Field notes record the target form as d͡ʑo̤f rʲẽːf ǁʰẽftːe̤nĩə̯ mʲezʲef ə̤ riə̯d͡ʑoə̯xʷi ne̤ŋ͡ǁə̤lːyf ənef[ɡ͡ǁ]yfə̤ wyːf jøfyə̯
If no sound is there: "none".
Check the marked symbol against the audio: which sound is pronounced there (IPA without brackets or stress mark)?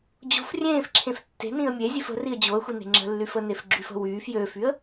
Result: ɡ͡ǁ